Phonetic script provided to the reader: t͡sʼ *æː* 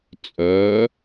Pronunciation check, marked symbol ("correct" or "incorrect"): incorrect